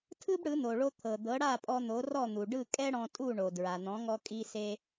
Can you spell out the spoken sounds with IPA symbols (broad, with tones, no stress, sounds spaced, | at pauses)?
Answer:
tʰ ɯ˥ b ɽ ɯ˩˥ n̪ o˩ ɭ o˧ t̪ʰ ɤ˩ d̪ ɤ˩˥ ɽ a˥˩ pʼ ɔ˧ n̪ o˩˥ r ɔ˥˩ n̪ u˩ ɖ ɯ˥˩ kʼ ɛ˥ ɽ ɔ̃˧ tʼ u˥˩ ɳ o˩ d ɹ a˩ n̪ ɔ̃˩˥ ŋ ɔ˧ kʼ i˥ s e˥